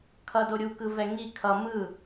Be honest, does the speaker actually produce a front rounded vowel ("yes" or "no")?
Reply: no